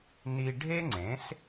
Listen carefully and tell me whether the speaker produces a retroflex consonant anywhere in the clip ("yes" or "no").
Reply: yes